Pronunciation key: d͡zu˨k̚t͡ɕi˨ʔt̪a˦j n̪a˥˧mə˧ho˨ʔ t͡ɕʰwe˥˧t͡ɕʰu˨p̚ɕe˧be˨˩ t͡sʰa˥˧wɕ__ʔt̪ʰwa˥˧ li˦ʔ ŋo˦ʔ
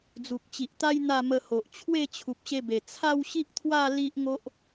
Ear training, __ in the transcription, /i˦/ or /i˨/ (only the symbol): i˦